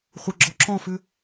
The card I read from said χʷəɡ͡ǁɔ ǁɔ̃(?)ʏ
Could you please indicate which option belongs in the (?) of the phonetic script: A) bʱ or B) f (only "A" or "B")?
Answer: B